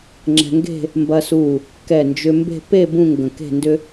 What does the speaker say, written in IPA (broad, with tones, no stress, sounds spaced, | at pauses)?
ŋ͡ǁ ɛ̤˧ ŋ ɡ e̤˥˧ | m b ɐ˧ s u˧˩ | k ɛ˧˩ n d͡ʒ ʏ˧ m b e̤˥˧ p e˥˧ b ũ˥˧ ŋ ɡ ə̃˧˩ k e̤˥˧ n d ʏ˥